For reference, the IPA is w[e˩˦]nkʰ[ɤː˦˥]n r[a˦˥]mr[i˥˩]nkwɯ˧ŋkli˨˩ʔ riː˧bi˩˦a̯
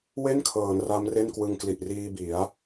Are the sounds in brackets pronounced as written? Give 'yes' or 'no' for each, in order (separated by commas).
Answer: no, no, yes, no